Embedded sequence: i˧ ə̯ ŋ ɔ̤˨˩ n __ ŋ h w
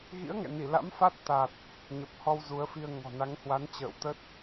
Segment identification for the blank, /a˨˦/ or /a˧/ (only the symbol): a˨˦